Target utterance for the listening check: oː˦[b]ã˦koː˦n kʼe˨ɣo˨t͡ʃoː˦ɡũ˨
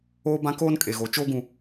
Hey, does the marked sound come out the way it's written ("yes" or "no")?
yes